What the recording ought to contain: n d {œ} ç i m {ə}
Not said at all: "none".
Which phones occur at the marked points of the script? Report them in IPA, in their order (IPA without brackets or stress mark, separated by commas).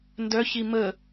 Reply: œ, ə